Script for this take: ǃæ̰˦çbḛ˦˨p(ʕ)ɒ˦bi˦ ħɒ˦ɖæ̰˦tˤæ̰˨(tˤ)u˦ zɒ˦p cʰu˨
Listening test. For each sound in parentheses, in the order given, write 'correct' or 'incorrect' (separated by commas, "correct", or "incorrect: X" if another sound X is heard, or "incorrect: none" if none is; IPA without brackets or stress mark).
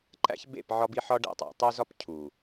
correct, correct